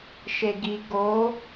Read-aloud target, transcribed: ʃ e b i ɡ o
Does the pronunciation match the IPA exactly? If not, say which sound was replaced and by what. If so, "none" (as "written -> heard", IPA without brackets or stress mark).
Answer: b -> ɡ